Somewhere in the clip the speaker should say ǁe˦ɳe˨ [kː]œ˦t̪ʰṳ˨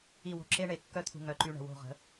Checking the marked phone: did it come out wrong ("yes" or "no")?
no